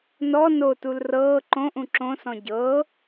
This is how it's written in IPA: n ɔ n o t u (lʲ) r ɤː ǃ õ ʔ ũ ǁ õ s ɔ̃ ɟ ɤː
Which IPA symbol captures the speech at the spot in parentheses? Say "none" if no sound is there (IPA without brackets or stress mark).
l